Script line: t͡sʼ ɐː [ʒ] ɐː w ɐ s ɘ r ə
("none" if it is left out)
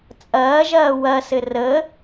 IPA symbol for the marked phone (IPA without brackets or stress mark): ʒ